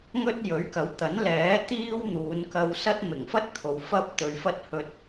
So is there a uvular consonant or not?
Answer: no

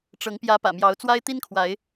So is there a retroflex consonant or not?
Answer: yes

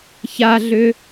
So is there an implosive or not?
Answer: no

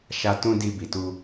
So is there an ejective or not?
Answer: no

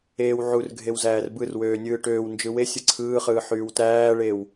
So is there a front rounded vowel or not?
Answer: yes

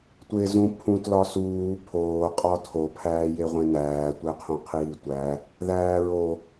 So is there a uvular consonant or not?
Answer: yes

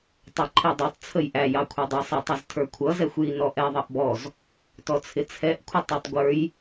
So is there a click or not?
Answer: yes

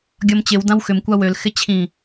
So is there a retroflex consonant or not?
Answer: no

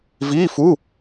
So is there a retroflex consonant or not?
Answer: no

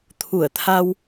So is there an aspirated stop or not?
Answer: yes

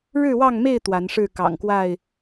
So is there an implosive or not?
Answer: no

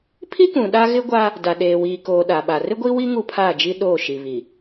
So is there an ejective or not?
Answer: no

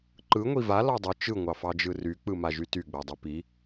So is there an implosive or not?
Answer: no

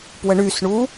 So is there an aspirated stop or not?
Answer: no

